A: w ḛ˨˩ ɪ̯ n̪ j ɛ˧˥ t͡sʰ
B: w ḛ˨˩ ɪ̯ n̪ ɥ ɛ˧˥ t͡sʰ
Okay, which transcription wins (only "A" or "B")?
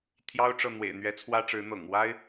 B